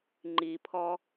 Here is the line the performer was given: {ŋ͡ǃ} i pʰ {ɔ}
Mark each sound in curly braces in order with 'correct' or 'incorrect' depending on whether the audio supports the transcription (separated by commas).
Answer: correct, correct